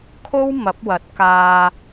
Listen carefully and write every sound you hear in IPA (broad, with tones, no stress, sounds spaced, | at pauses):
kʰ o˥ w m ɐ˨˥ p̚ w ɐ˨˥ t̚ k aː˨